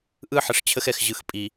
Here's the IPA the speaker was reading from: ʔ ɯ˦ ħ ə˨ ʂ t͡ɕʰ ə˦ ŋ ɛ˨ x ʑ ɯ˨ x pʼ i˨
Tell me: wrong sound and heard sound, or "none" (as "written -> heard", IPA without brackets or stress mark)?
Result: ŋ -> x